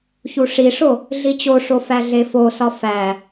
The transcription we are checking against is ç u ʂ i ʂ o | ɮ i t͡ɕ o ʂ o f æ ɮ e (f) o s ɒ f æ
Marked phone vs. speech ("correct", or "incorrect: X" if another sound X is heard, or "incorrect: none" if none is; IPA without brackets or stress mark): correct